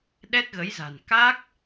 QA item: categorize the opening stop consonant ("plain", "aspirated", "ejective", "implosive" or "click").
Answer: implosive